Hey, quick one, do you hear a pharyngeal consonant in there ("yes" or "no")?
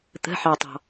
yes